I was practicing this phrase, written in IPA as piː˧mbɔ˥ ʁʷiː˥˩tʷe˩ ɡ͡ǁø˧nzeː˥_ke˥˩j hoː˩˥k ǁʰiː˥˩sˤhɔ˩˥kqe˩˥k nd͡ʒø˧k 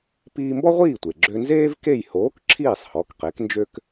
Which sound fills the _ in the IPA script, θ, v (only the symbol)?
v